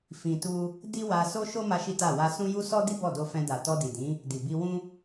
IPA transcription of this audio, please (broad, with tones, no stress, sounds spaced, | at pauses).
f ĩ˧ t u˦ | d i˦ w a˧ s o˦ ʃ o˦ m a˦ ʃ i˦ t a˦˨ w a˧ s ũ˦ j u˦ s ɔ˦ d i˦ b ɔ˦˨ d o˧ f ɛ̃˧ d a˨ t ɔ˧ d i˨ d ĩ˨˦ | d i˨ b i˧ w ũ˦